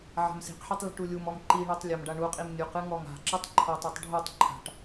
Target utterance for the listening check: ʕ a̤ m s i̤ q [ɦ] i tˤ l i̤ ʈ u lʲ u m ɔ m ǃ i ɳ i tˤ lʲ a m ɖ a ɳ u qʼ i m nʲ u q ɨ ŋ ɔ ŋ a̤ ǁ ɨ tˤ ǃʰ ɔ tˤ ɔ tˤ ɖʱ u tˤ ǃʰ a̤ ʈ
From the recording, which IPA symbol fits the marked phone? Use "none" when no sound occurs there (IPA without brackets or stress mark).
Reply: ħ